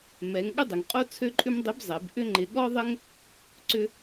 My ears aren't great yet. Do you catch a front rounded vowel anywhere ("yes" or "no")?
yes